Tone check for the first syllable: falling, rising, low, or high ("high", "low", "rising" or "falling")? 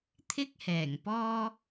high